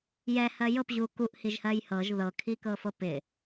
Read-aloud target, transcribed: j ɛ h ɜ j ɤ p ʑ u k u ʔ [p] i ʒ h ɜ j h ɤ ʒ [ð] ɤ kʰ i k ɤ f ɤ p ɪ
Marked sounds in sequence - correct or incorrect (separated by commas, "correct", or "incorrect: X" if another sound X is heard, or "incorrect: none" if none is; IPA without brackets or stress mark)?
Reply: incorrect: h, correct